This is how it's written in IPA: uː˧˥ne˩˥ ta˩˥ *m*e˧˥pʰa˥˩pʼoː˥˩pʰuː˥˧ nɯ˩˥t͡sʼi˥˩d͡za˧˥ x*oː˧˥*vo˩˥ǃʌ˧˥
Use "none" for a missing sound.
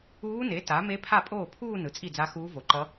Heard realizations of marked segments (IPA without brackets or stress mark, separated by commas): m, uː˧˥